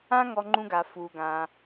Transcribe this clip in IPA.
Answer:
ã˥ ŋ ɔ˧ ŋ͡ǃ ũ˧ ɡ a˩ f u˩ ɡ ã˩

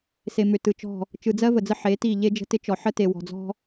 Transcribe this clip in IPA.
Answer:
s e˨ m ʏ˨ t ɯ˨ t͡ʃ ɔ̤˦˨ | t͡ʃ ɯ˨ d͡z ɜ˦ v ə˨ d͡z ə˦ ħ e˨˦ t i˦˨ ʎ e˦ d͡ʒ ə̤˦ t ɪ˦ t͡ʃ ɔ˨ ħ ə˦ t e˨ w ɔ̤˨ d͡z ɔ̤˦

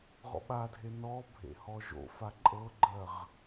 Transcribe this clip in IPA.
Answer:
ʁ ɔ̰ ɓ a dʱ e n ɔ bʱ ḛ h ɔ ʒ o̰ f a ǃʼ ɤ ɡ͡ǃ ɜ ʁ

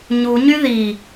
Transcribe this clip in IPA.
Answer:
ɲ u ɲ y ð i

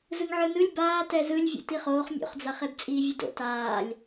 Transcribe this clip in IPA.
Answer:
z ɯ ŋ ʕ ɯ n ɯ lʲ b aː t ɛ z ɯ lʲ vʲ ṵ t i χ oː χ mʲ o̰ χ d͡z a χ e b t͡sʼ iː vʲ ɯ d o̰ t aː lʲ

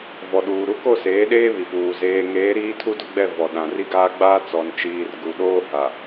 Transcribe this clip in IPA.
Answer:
v ɔ˨ ɗ uː˨ ɾ u˦ k o˦˨ s eː˨˦ ɗ eː˦ β i˨ p uː˨ z eː˨ ŋ eː˨˦ ɾ iː˦ tʰ u˦ d ʊ˦ ɡ͡b ɛ˦˨ v ɔ˨ ɗ ã˨ r i˦ ɡ aː˦ ɡ͡b aː˦ t͡s ɔ˨ n t͡ʃ iː˨ r ɡ u˨ ɗ oː˦ h a˨

